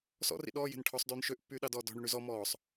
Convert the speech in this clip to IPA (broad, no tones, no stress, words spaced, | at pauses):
sɔ̰rḭ ɗɔː je̤nʈʰɔsˤdyːn ʃøʔpːyːɗɑ dɔːdɔ̤ɳy ɳyzɔ mɔːsˤ